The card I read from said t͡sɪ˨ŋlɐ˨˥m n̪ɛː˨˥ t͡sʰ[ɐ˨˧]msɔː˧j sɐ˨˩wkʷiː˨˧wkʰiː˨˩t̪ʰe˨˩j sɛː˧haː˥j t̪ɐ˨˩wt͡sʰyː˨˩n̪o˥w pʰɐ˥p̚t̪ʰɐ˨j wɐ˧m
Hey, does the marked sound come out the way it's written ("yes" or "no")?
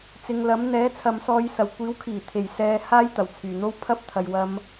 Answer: no